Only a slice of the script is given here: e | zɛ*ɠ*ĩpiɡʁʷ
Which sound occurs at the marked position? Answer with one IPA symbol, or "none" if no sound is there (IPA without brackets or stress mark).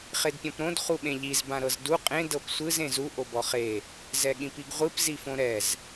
ɠ